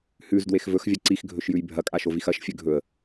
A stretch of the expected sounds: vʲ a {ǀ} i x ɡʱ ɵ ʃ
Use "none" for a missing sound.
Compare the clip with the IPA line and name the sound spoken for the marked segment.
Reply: ǀ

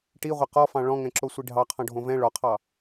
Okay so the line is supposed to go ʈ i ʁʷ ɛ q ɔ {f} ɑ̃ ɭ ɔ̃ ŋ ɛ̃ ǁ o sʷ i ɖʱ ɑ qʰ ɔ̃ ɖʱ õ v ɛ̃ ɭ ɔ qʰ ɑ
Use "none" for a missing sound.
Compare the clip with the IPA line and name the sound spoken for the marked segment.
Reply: f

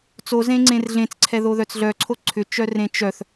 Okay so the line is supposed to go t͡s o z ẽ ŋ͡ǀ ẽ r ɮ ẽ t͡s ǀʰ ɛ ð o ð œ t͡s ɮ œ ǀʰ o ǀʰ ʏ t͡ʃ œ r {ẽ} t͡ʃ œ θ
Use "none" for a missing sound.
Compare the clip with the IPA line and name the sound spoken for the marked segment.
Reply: ẽ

